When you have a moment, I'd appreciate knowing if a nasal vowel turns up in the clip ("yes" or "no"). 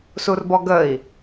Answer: no